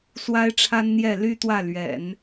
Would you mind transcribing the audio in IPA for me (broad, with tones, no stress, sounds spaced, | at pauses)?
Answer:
s w a˥ ɪ̯ ʈ͡ʂʰ a˥ n n̪ j ɛ˥˩ l y˥ t̪ w ä˥˩ l ɥ ɛ̰˨˩˦ n